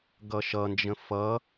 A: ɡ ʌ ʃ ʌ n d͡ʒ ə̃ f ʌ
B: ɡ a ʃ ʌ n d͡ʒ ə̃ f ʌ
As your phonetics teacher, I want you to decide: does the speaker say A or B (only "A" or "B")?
A